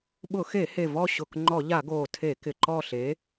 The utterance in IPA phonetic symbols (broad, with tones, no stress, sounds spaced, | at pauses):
ɓ ʊ˧˩˧ x e˧˩˧ h e˨˩ v ɔ˦˨ ɕ ʊ˨˩ k ŋ͡ǃ ɔ˧˩˧ ʎ a˧˩˧ ɡ oː˨˩ tʰ e˧˩˧ k ɪ˨˩ ǃ ɔ˦˨ ɬ e˨˥